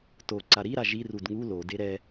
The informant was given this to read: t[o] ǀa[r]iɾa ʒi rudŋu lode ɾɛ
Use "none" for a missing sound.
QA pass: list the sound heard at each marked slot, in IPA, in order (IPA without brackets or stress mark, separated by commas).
o, ɾ